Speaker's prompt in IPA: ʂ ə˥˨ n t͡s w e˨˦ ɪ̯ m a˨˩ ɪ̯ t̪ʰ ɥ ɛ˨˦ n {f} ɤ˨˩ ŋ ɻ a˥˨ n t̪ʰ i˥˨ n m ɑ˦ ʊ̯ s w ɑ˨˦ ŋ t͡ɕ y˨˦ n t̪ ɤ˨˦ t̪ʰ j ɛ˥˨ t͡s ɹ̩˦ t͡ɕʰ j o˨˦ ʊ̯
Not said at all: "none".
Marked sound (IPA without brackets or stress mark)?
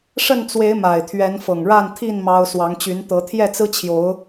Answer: f